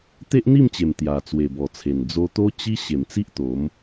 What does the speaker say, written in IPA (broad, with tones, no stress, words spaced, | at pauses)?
t̪e˦ʔn̪i˥˧mt͡ɕe˨˩m t̪ja˨˩t͡swe˨˩bɔ˨˩t͡sʰe˨˩n d͡zo˧t̪o˦t͡ɕi˦ ɕe˨˩mt͡si˦ʔt̪o˨˦m